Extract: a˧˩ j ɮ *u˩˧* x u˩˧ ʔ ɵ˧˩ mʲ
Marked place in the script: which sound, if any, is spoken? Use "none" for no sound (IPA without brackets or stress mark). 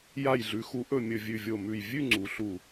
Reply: ʉ˩˧